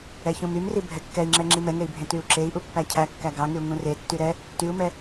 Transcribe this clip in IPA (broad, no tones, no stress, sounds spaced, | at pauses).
ɛ ç ũ m y m r i bʱ ɛ kː ɛ i̯ ŋ͡ǁ ɛ ŋ͡ǁ i m ɛ ŋ e i̯ bʱ ẽ t y u̯ ǁ e i̯ ʔ u pː æ cʰ æ kː æ ɡ ɑ ŋ y u̯ ŋ ũ r e tː y ɾ ɛ | t y u̯ m ɛ